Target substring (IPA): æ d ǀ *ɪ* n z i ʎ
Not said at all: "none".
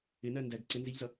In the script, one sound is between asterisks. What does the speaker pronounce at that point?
ɪ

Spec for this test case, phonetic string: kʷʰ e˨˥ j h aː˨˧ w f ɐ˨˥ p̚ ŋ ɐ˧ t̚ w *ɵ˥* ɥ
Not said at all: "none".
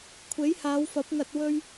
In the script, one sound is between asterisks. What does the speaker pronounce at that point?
ɵ˥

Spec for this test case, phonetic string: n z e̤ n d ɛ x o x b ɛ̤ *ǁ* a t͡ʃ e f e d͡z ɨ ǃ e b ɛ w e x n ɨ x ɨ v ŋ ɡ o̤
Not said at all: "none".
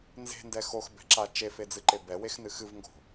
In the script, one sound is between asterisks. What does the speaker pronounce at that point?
ǁ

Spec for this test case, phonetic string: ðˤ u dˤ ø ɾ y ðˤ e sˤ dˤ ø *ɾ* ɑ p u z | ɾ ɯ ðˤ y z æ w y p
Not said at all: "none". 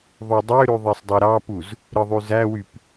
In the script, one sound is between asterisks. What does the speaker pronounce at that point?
ɾ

